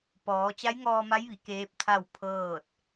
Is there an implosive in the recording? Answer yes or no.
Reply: no